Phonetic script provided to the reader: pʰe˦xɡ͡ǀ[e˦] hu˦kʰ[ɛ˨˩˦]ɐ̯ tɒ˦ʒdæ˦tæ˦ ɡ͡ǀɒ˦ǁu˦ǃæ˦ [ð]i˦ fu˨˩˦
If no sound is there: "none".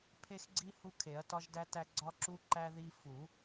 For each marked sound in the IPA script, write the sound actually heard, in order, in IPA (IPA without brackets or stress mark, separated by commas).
i˦, e˨˩˦, ð